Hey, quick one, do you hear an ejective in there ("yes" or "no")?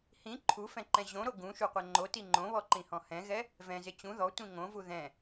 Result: no